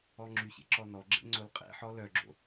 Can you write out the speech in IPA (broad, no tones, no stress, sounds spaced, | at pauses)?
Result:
ɔ ŋ͡ǁ y ç ḛ ǁ ɔ n ɔ ɡ͡ǁ ḛ ŋ͡ǀ o l qʼ ḛ ħ ɔ l œ ɡ͡ǁ o̰